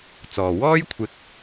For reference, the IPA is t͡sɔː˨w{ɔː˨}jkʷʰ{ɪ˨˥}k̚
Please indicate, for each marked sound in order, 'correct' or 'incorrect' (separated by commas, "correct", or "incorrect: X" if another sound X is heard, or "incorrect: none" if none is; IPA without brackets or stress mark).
incorrect: ɔː˥, incorrect: ɪ˧